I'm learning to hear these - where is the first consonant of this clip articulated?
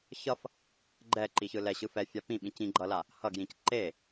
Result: palate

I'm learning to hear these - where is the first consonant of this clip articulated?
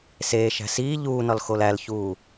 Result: tongue tip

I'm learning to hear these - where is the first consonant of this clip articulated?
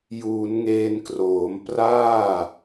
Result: palate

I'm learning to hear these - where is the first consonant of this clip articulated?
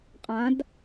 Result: uvula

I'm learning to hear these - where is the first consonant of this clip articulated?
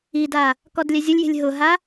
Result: tongue tip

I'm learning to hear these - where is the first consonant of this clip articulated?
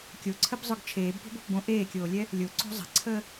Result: velum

